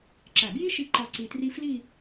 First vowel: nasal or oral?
oral